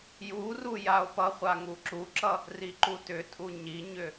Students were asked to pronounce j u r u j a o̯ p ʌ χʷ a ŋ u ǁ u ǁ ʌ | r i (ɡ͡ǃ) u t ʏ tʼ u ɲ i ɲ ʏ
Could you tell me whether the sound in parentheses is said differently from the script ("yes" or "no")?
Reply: yes